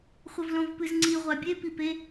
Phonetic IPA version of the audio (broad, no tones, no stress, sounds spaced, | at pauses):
χʷ ɐ v l õ v p ɨ z ŋ͡ǀ i ʁʷ a bʲ e p i p e